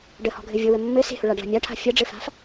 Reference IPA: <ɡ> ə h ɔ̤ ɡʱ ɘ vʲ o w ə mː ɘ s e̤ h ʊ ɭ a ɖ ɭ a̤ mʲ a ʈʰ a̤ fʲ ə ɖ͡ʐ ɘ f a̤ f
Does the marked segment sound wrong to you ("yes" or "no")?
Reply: yes